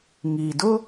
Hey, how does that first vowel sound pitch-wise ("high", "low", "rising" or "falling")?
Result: low